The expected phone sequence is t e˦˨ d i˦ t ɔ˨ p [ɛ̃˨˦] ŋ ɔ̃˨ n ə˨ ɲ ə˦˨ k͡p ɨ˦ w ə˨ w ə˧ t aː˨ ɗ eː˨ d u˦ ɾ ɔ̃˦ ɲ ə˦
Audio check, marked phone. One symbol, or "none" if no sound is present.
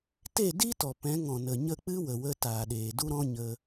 ɛ̃˨˦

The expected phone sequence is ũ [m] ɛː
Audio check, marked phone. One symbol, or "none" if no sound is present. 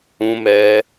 m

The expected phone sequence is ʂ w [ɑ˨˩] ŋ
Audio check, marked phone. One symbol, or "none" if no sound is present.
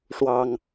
ɑ˨˩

